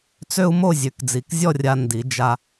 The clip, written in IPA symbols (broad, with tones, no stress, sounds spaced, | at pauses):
t͡s ø˥ u̯ m o˥˧ zʲ ø˩˧ k d͡z i˩˧ k zʲ ɔ˥˧ rʲ a˧ n d i˩˧ d͡ʒ a˧